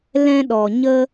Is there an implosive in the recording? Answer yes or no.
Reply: yes